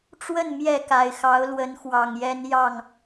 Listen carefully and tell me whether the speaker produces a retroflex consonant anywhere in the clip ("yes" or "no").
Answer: yes